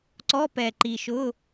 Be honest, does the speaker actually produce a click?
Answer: yes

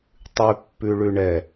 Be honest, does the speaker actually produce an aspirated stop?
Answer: no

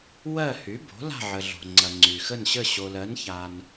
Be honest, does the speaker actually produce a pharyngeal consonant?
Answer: yes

